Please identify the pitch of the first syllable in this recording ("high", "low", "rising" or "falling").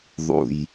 low